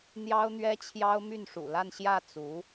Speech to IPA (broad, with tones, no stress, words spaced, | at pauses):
n̪jɑ˥ʊ̯n̪ɥɛ˥t͡ɕʰjɑ˥ʊ̯ my˥˩nʂṵ˨˩la˥˧n ɕjä˥˩ t͡su˧˥